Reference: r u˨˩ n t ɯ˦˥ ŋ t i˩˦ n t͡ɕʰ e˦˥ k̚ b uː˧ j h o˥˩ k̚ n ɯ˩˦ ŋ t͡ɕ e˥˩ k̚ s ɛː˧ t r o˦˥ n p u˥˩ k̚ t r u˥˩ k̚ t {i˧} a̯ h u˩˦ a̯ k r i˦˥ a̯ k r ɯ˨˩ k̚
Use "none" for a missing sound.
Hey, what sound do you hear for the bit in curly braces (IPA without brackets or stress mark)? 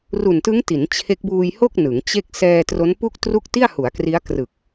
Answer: i˥˩